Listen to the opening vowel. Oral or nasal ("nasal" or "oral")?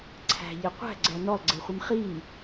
oral